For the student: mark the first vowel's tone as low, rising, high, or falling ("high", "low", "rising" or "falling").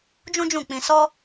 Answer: high